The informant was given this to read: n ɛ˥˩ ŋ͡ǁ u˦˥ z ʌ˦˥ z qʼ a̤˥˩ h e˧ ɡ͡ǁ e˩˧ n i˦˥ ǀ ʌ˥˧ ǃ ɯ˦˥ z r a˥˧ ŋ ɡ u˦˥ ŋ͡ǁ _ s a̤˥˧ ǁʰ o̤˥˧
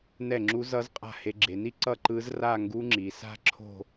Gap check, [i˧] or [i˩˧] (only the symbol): i˩˧